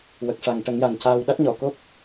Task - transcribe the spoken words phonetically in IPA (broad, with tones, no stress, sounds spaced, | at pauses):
w ə˨˩ k̚ ʂ a˨˩ ŋ ʈ ə˨˩˦ ŋ j a˨˩ n c aː˧ w ɗ a˦˥ t̚ ɲ ɔ˨˩˨ k o˦˥ k̚